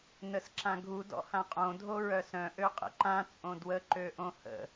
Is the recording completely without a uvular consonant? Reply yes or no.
no